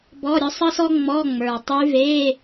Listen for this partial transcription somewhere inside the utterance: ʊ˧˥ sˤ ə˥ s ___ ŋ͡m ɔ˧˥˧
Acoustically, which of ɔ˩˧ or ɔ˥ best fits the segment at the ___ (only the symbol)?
ɔ˥